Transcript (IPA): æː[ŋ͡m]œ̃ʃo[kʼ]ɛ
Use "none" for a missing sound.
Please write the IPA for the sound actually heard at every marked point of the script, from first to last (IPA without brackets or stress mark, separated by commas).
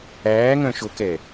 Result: ŋ, k